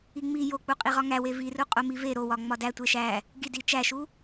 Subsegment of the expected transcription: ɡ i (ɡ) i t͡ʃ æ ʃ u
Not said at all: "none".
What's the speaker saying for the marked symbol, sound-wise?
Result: d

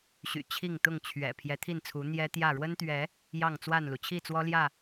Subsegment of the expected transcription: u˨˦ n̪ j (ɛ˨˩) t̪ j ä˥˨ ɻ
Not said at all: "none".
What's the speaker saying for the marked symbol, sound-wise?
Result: ɛ˦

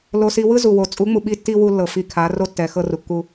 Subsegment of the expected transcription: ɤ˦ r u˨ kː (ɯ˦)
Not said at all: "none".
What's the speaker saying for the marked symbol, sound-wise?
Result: u˦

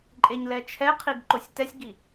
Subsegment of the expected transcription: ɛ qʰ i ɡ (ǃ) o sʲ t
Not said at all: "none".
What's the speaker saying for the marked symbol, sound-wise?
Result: ǃ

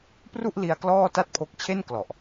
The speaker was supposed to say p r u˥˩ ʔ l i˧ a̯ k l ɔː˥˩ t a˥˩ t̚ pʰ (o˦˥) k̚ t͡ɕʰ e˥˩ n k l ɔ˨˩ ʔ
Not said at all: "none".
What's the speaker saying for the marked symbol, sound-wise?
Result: o˦˥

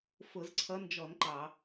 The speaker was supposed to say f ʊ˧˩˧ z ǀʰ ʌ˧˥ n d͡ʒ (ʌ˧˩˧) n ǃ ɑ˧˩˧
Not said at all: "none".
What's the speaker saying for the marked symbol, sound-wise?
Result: ɔ˧˩˧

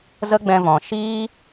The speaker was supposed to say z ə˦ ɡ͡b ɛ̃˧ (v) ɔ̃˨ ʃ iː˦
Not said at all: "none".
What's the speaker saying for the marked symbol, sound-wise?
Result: v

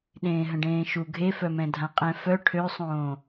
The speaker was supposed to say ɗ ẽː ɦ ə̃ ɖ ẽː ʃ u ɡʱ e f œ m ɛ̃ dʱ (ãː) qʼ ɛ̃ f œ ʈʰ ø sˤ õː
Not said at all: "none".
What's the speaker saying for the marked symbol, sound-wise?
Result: ã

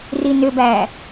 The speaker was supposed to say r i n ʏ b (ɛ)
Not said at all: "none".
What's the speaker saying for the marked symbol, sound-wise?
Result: æ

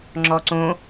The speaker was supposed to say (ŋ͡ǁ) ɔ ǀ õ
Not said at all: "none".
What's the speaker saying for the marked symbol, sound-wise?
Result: ŋ͡ǁ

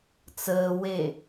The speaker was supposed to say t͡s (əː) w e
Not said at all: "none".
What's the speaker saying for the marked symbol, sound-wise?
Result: əː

